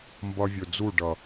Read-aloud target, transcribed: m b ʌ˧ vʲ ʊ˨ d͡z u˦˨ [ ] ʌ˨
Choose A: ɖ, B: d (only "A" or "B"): A